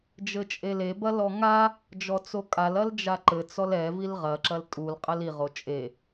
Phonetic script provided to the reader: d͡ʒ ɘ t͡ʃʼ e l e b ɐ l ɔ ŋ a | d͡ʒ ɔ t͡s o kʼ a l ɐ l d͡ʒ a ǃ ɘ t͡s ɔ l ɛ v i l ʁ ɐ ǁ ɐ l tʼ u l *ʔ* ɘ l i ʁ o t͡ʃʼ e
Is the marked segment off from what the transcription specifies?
yes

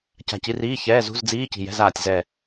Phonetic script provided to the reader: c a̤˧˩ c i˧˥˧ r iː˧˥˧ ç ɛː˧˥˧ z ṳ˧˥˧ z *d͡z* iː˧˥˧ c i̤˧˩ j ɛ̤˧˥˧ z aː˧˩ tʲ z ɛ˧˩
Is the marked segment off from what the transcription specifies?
no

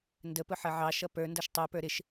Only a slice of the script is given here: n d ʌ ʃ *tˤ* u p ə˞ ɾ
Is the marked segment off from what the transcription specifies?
no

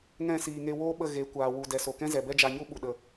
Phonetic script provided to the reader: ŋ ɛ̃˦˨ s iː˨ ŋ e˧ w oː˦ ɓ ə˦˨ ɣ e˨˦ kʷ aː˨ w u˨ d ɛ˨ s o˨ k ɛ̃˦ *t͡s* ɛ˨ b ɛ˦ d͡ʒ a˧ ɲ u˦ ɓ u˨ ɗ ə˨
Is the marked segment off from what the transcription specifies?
yes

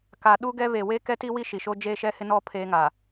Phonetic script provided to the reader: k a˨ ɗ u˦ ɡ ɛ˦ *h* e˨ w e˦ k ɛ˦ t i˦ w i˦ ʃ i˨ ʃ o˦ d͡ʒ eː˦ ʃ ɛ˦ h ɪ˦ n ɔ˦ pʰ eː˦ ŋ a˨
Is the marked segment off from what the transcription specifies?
yes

